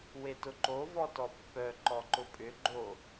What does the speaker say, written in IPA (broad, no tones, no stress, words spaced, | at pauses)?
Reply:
wetʊǃo vɔtɔpːœ ǃɔǃʊpʼʏ ɡ͡ǃo